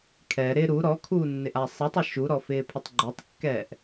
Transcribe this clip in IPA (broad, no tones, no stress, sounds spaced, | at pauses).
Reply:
kʰ ɛ ɾ ɪ ɾ u ɾ ɔ kʰ uː nː ɪ ʔ a sˤ i tˤ i ʃ u ɾ ɔ f ɪː pʰ ɪ tˤ ɡ͡ǃ o tˤ kː ɛː ʔ